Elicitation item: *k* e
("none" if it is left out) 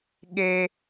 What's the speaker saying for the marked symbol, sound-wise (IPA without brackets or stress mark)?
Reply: ɠ